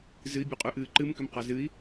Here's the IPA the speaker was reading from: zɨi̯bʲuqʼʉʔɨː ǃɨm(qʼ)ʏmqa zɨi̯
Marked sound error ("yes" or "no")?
yes